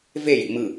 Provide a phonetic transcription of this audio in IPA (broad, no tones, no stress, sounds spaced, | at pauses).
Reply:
v e j ḭ m ɯ